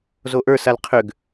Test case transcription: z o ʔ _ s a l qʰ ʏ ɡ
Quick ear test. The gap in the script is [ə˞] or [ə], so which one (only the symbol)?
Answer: ə˞